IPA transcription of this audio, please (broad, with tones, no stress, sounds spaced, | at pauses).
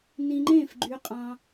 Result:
n ĩ˧ ŋ͡ǃ ẽ˥˨ f ɡ͡ǃ y˧ qʼ ɑ̃˧